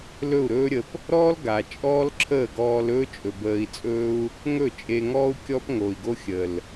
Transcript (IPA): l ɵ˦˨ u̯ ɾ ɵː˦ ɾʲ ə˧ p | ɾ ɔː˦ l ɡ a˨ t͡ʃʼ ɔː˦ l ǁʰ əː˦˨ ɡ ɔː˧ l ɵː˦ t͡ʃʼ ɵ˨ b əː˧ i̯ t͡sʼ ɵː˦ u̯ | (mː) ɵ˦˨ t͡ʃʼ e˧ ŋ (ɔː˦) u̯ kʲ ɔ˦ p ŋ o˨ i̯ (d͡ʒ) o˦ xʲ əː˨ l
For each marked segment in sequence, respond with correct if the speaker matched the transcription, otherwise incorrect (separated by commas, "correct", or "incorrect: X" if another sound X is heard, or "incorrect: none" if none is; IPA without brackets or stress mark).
incorrect: ŋ, correct, incorrect: ɡ